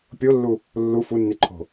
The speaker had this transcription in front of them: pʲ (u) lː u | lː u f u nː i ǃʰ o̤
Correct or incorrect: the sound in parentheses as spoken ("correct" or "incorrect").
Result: incorrect